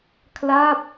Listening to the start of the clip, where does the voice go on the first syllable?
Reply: falling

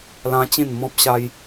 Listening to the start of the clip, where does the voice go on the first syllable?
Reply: high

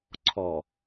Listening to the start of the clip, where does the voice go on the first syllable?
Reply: low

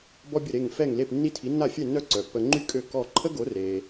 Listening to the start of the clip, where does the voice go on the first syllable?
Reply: high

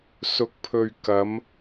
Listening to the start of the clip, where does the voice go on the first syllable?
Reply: rising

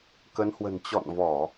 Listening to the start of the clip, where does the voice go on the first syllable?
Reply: rising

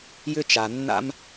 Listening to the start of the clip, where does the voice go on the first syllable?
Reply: high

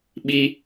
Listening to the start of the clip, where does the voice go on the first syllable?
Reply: low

